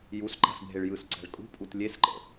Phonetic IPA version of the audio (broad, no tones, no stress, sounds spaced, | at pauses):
j u s ǃ a̤ s bʱ e ɭ j ɯ s ǀ ɛ̤ ɭ kʼ ṳ pʼ u t lʲ e s ǃ ə̰